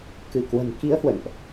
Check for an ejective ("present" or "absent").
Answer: absent